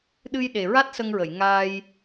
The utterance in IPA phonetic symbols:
ɗ ɨ˧ j ɗ e˨˩ ɹ a˦˥ t̚ s ə˧ ŋ ɹ ə˨˩˨ j ŋ aː˧ j

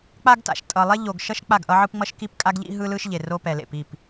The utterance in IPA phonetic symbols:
k͡p a˦ ɡ t a̰˨ ʃ tʼ ʌ˨ lˠ ɛ˦ ʎ o˨ ɡ ʃ ʌ˦ ʃ k͡p a˦˨ ɡ ʔ ʌ˦ ʕ ɯ˦ p ŋ͡m ʌ˦ ʃ k i˦˨ p kʼ a˦ ɡ ʎ ḭ˦ ɦ ɯ˦ l ɯ˦ ʃ ʎ e˨ r o˦ p ɛ˨ l ḛ˨ p i˦˨ p

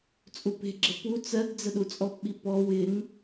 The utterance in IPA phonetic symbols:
t͡sʼ u p e̤ ɡ͡ǁ ə p u t͡s ɜ ɡ d͡z ə ɗ u t͡sʼ ɔ p ɓ i p ɔ w ɪ ŋ

